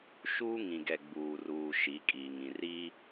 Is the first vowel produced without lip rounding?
no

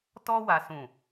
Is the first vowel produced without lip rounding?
no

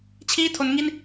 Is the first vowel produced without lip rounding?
yes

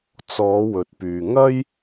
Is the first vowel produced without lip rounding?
no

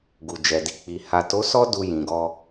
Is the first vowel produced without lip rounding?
no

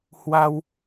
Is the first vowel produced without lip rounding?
yes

